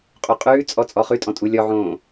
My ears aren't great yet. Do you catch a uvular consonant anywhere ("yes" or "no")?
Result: yes